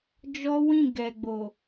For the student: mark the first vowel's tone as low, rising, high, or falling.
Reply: high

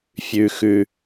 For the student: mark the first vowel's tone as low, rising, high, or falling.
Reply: low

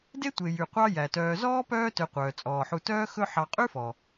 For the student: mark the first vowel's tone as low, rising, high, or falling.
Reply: high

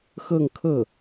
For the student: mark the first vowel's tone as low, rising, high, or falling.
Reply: falling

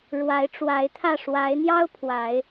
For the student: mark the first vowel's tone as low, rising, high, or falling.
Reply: rising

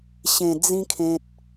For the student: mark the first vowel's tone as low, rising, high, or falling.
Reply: low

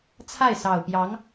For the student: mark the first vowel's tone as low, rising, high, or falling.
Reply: falling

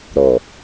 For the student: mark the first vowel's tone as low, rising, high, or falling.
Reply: low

